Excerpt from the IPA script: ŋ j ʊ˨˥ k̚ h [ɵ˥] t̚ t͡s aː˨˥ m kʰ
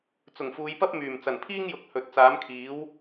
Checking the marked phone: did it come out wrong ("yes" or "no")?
yes